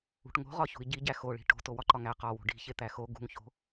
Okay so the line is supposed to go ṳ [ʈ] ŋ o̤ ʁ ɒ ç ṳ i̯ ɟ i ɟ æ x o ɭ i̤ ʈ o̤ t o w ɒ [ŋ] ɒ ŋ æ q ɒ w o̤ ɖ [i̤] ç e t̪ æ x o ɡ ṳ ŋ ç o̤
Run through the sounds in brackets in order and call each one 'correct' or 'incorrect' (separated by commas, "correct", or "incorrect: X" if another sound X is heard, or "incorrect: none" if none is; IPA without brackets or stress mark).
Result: correct, incorrect: ǃ, correct